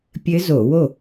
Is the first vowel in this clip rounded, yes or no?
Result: no